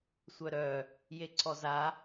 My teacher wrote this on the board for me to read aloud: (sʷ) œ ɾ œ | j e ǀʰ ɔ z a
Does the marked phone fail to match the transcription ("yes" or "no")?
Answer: no